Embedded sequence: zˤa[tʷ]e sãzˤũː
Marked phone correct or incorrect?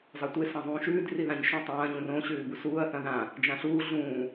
correct